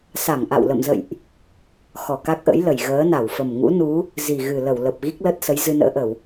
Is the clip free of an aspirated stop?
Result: yes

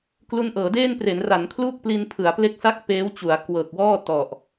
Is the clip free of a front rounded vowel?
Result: yes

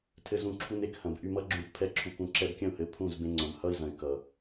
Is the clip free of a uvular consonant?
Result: yes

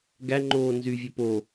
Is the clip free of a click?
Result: no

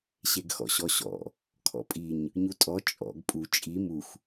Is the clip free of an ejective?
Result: no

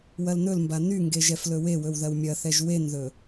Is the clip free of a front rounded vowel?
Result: no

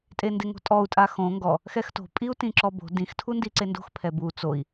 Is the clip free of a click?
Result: no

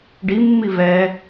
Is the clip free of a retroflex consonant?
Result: no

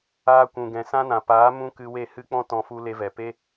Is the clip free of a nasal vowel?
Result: no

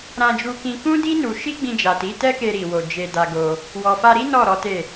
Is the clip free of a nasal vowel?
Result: no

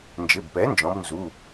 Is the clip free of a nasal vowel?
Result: no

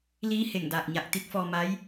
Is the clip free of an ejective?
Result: yes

